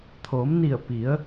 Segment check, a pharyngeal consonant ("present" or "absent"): absent